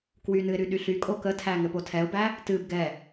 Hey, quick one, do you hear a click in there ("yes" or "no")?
no